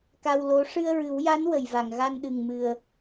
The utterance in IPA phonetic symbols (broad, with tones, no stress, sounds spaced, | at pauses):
k a˧ w l o˧˥ ʂ ɨ˧ ə̯ ɹ ɨ˨˩˦ w j a˧˥ n w ə˨˩˨ j v a˨˩˨ ŋ ɣ a˧ n ɗ ɨ˨˩ ŋ m ɨ˨˩ ə̯